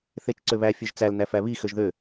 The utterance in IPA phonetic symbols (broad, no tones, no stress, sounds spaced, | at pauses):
θ e t͡ʃ ǀ ø β æ fʲ ø ʒ t͡s æ l n æ f æ β i x ø ʒ ð ø